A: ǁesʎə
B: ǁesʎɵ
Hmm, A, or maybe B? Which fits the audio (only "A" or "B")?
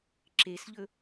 B